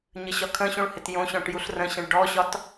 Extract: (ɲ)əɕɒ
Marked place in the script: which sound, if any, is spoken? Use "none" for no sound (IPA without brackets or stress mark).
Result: ɲ